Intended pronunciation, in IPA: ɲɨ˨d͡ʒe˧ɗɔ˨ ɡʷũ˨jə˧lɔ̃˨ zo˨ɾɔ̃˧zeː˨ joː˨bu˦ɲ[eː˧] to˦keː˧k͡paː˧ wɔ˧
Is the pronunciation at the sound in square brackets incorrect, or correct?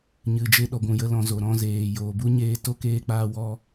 correct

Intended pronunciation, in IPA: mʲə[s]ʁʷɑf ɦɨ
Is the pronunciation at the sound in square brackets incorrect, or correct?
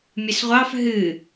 correct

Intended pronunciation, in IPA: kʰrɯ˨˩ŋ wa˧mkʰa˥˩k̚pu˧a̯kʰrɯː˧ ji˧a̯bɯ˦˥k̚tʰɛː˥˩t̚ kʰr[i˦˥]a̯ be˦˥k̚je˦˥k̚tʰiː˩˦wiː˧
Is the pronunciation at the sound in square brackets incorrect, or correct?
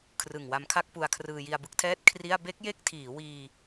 incorrect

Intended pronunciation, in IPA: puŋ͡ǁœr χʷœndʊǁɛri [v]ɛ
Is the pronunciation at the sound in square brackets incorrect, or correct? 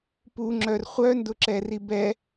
incorrect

